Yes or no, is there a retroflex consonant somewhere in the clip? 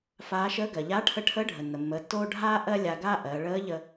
yes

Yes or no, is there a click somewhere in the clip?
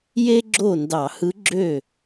yes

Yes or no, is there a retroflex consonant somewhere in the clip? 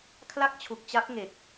no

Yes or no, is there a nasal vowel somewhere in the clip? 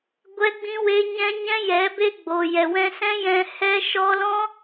yes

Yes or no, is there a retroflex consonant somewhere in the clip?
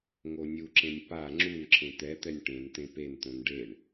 yes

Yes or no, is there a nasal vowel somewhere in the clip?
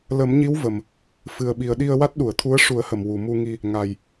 no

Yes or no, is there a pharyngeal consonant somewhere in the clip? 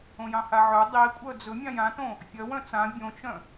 yes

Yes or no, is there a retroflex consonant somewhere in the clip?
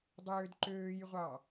no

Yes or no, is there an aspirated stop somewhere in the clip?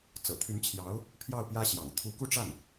yes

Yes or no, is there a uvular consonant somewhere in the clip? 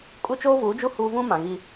no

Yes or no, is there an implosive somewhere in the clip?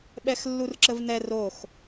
yes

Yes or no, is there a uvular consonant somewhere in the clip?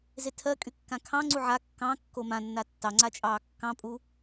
no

